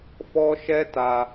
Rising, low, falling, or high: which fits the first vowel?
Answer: high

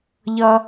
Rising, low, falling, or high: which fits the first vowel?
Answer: high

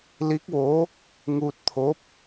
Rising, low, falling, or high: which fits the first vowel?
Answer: rising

